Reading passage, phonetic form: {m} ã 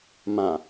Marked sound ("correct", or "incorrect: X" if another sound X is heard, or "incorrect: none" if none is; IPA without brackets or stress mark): correct